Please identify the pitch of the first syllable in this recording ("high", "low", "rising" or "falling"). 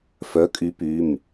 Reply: rising